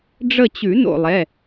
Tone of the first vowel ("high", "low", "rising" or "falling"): falling